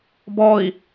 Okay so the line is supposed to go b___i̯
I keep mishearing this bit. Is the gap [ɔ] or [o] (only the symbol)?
ɔ